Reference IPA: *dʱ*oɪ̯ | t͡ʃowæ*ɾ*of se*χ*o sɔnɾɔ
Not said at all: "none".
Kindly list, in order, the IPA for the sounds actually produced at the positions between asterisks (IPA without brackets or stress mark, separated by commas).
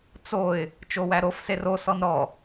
t͡s, ɾ, r